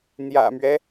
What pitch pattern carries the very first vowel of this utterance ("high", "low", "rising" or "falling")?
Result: low